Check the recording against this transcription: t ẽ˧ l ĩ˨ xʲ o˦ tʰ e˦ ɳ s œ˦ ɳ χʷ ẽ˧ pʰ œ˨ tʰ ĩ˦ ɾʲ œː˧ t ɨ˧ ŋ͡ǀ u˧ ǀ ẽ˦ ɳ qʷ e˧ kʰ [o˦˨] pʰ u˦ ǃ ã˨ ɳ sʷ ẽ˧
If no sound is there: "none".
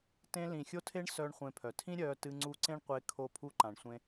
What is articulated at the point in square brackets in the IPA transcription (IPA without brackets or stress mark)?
o˦˨